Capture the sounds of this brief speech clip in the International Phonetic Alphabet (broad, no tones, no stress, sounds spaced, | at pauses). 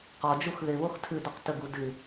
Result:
q ɔ d͡ʒ u x ð ɪ β o x tʰ ɨ d o q t ə ɡ u d ɨ